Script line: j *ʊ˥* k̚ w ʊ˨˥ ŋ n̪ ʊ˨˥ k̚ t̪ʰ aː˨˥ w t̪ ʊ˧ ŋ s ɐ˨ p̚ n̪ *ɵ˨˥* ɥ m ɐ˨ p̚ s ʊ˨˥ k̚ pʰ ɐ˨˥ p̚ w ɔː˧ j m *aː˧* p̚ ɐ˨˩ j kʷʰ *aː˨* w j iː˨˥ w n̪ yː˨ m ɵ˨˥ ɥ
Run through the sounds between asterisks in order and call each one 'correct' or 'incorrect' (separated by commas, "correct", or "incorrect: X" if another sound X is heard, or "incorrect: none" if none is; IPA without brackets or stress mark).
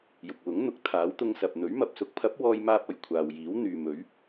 incorrect: ʊ˨, correct, correct, correct